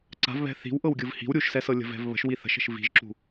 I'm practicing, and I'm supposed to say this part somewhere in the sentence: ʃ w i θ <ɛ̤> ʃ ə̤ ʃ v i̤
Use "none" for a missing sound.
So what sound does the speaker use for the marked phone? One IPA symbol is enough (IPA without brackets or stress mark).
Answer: ə̤